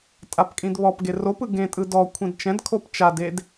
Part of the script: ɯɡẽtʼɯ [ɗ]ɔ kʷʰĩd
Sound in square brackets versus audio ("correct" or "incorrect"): incorrect